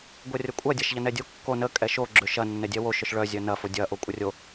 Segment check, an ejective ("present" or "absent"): present